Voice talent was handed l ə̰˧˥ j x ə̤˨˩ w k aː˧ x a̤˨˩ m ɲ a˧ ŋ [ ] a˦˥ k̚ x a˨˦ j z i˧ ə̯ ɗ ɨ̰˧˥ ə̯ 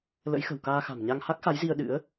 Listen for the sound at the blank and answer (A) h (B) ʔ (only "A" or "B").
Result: A